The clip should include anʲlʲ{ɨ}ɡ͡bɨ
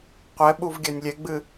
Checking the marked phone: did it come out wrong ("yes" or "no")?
yes